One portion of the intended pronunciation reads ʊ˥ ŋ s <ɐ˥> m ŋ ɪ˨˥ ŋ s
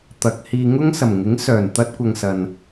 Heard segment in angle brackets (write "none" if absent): ɐ˨˩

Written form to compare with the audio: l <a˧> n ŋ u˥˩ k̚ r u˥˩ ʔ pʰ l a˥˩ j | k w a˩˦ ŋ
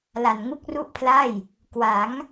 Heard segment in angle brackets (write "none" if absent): a˧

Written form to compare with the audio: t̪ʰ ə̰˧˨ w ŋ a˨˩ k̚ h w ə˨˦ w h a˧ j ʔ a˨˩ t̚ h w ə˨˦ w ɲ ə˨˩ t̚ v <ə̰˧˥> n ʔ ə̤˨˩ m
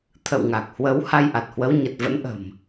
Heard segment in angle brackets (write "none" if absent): ə̰˧˥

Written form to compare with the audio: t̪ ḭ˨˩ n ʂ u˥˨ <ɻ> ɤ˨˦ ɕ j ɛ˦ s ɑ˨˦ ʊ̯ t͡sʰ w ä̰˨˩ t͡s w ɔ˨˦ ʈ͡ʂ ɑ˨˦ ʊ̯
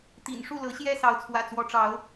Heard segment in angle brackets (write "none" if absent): l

